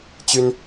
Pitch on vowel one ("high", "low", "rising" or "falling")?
high